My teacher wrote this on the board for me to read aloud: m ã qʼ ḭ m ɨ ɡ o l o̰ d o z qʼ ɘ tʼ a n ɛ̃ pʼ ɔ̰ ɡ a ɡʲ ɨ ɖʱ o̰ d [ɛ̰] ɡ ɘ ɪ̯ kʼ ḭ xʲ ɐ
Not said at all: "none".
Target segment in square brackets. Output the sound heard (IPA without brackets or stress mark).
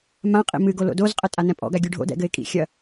ɛ̰